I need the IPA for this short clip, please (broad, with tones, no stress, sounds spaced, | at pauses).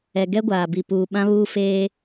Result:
ɛ˨ ɡ ɛ˦ ɡʷ aː˨ b i˨ p uː˨ ɓ ã˦ β uː˦ f eː˦